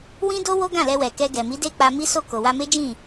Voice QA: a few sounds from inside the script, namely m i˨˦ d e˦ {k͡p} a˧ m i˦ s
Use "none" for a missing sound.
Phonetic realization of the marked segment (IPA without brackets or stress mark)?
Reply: k͡p